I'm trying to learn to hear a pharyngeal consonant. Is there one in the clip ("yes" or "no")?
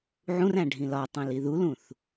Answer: yes